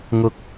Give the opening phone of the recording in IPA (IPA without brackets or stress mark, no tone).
ŋ